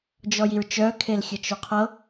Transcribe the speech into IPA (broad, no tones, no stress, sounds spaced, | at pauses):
d͡ʒ ɔ j i ɹ t͡ʃ œ kʰ e l xʲ ə t͡ʃ o qʰ ɤ